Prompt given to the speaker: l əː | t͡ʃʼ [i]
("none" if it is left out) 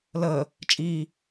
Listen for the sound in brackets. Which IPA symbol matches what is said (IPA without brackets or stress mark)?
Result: iː